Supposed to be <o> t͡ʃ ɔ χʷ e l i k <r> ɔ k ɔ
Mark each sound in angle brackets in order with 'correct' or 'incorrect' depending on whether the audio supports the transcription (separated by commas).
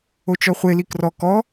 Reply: correct, correct